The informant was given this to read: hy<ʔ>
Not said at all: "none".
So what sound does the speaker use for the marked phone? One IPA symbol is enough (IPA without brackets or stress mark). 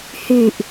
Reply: ʔ